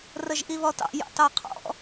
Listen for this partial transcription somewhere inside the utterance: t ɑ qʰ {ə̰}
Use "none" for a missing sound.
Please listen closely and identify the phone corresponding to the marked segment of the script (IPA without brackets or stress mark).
ɔ̰